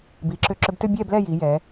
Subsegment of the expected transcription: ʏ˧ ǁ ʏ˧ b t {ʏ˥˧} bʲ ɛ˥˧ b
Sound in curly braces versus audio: correct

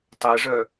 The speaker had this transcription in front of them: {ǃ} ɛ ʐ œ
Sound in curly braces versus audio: incorrect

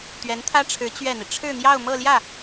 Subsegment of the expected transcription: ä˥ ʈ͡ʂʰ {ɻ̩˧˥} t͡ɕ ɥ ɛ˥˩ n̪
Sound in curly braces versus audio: correct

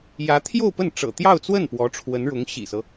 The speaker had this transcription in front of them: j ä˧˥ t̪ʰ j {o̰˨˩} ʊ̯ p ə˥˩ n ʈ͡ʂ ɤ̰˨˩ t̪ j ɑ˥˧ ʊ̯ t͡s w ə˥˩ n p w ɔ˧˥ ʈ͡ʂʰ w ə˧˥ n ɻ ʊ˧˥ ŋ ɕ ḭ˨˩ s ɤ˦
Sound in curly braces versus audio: incorrect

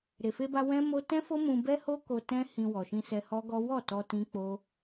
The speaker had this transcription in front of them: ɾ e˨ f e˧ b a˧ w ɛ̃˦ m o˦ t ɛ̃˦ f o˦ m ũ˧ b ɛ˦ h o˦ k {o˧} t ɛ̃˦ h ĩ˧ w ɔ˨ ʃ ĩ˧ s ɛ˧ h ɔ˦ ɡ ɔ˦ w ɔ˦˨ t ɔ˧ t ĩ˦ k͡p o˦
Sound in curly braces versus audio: correct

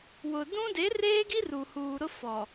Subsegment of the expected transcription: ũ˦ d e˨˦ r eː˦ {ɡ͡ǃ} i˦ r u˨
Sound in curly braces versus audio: incorrect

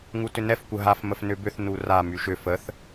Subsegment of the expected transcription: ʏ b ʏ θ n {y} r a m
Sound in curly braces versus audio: incorrect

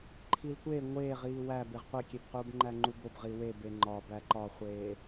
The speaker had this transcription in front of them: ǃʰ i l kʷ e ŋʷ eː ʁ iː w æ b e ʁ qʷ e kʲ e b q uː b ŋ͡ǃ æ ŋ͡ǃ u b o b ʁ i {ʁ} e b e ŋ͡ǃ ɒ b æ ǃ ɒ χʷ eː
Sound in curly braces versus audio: incorrect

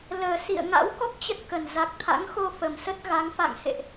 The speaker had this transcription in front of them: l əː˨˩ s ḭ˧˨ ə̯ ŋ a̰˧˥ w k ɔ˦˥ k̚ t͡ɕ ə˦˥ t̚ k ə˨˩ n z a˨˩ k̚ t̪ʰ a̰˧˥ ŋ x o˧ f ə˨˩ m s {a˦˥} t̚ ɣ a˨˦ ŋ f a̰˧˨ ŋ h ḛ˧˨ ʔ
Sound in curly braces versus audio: incorrect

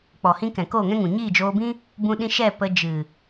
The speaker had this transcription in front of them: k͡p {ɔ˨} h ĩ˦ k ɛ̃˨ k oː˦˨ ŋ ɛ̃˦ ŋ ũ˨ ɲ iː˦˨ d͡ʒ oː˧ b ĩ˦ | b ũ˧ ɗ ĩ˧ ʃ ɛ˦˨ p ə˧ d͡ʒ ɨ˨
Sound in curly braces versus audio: correct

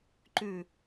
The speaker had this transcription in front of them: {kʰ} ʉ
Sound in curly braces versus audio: incorrect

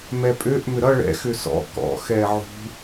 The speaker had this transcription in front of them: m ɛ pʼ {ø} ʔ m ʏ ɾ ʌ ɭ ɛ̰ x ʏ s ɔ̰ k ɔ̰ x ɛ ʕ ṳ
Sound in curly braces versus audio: correct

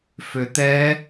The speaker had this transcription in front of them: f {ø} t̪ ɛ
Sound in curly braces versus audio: correct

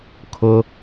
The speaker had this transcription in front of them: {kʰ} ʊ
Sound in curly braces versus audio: correct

